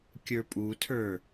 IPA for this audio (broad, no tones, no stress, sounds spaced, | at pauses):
kʲ ə˞ pʼ u tʰ ə˞